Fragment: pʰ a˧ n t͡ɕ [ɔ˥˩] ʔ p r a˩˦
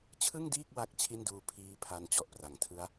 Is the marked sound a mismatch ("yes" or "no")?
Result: yes